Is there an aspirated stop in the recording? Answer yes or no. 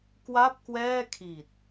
yes